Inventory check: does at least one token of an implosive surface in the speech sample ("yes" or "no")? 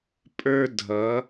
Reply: no